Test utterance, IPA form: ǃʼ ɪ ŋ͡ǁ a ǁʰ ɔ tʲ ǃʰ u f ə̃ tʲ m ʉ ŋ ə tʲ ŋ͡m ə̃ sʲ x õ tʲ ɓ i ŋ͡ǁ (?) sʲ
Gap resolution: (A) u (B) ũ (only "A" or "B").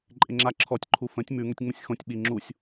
A